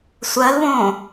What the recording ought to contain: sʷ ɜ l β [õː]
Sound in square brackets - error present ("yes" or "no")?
no